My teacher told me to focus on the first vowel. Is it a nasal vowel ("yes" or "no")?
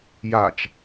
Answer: no